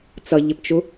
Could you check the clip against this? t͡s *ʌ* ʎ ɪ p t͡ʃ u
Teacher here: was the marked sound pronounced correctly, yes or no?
yes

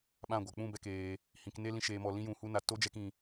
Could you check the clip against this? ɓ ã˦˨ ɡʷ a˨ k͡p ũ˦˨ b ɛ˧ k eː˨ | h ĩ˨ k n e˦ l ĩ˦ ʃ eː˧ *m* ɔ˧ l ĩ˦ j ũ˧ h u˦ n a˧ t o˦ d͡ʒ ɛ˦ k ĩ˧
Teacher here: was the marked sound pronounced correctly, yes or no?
yes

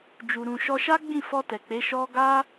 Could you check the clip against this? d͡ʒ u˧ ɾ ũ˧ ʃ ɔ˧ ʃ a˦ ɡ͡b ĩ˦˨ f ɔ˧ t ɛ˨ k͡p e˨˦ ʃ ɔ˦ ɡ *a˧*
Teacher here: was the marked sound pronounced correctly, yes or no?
no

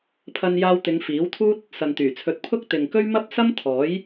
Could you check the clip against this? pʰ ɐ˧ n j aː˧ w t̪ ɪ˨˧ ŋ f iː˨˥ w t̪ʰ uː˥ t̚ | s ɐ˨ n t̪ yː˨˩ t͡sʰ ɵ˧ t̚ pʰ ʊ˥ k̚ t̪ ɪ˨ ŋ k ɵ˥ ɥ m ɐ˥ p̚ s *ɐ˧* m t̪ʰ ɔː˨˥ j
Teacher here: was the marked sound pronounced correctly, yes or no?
no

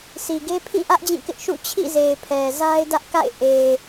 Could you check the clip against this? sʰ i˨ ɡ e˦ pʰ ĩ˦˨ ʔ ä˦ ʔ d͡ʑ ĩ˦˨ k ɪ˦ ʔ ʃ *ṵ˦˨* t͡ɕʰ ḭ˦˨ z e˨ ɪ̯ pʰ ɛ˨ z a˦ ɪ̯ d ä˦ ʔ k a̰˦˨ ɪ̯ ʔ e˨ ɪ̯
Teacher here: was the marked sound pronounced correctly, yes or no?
yes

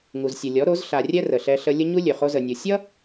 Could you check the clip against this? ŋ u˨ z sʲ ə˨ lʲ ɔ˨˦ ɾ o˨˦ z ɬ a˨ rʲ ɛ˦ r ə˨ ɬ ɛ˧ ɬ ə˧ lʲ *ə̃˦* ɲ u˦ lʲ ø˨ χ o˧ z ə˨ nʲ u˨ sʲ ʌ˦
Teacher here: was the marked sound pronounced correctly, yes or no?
no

